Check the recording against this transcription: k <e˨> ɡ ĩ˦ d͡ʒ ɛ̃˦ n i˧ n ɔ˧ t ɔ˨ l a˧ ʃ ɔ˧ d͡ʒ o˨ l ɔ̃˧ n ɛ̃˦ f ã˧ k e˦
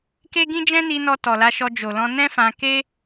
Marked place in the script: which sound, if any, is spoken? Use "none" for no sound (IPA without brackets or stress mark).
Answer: e˦